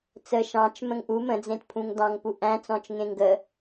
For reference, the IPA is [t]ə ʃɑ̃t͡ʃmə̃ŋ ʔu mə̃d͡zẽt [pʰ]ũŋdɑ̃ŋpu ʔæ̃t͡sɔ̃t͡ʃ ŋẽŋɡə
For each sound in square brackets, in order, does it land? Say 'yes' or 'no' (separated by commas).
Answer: no, yes